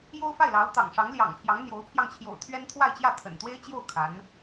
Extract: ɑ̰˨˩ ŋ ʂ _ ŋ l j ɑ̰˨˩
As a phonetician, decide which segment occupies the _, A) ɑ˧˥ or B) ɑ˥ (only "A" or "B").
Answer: A